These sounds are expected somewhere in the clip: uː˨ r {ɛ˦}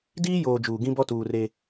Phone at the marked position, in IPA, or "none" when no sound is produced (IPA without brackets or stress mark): e˦